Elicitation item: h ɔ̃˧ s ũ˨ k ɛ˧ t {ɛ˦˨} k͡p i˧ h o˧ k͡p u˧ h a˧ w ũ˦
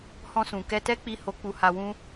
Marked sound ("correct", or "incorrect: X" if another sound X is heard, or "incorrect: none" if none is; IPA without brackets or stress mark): incorrect: ɛ˦